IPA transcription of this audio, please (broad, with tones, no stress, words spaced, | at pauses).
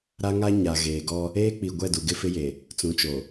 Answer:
ɾa˦ŋa˦ ɲa˨ɣeː˨ɡɔ˦ | eː˦k͡pi˨ɡʷɛ˦˨ du˨ɡɪ˦fɪ˦je˨ | t͡sũ˨t͡ʃo˨